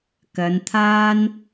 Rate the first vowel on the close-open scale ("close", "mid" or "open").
open